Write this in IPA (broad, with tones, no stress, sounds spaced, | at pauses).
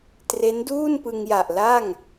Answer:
t r e˦˥ n d uː˥˩ n p ɯ˧ ŋ j a˨˩ ʔ l a˥˩ ŋ